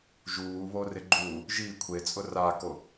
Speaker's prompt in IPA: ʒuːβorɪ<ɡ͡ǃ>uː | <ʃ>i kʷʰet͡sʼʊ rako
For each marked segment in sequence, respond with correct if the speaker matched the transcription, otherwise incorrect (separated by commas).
correct, incorrect